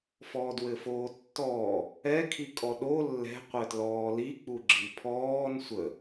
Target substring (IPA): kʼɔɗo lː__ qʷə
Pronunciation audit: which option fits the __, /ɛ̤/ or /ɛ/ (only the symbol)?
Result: ɛ̤